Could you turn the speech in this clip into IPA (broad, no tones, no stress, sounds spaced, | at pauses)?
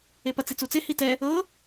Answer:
e p ɐ t͡s i t͡s u t͡s e h i t ɛ | ɤ